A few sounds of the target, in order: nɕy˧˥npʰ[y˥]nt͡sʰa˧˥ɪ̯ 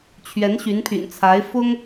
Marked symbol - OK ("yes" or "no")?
no